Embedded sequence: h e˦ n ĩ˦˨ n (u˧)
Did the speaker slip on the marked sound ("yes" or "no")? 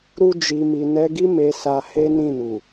yes